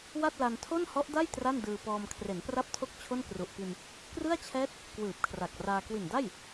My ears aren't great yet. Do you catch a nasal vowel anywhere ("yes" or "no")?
no